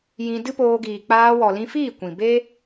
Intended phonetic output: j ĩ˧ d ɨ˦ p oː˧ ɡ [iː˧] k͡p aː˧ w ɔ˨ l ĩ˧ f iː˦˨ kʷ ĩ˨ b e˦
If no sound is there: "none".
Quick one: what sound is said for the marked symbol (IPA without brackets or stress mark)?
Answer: iː˨